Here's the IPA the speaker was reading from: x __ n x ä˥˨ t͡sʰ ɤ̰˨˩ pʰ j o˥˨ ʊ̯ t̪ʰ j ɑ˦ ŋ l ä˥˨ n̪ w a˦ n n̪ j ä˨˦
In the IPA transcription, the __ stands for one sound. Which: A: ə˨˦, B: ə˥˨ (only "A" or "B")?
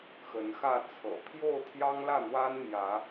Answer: A